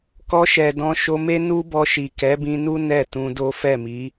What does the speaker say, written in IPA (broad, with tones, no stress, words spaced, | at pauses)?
kɔ˧ʃɛ˨ dɔ̃˧ʃo˧me˦ nu˦bɔ˧ʃi˨ kɛ˨˦bĩ˧nu˦ nɛ˦˨ tũ˧do˦ fɛ˦˨mi˨˦